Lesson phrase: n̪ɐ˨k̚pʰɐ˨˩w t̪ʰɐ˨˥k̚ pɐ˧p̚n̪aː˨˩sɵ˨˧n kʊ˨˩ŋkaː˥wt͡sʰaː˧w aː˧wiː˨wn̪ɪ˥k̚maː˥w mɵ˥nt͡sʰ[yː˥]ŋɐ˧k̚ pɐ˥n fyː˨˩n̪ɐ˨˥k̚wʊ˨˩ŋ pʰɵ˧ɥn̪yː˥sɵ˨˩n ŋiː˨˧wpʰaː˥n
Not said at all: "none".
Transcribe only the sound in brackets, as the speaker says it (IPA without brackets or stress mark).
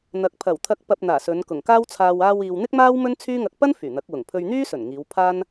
yː˥